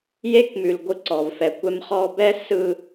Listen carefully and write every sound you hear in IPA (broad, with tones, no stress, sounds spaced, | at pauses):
j e˦ k m ʉ˨ l ɡʷ ɯ˧ ǀ ɔ˨ v f ɛ˨ kʷ ɛ˧ m χ ɔ˧ b ɛ˦ s ɯ˧